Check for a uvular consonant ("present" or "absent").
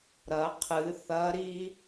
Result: present